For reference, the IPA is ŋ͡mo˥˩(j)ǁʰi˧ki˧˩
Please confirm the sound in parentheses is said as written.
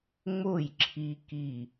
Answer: yes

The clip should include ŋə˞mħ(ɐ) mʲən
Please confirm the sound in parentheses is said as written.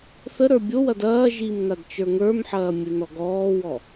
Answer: no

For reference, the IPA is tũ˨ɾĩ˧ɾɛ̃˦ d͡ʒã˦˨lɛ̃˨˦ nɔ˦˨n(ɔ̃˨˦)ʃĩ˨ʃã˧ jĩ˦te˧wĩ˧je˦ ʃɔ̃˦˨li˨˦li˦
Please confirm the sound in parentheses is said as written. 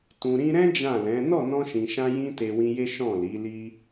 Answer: no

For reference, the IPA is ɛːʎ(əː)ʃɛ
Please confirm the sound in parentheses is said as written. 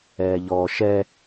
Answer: no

